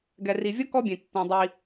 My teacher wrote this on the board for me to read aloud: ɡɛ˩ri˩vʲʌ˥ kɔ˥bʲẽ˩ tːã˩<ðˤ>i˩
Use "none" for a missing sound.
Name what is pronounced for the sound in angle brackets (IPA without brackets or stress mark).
dˤ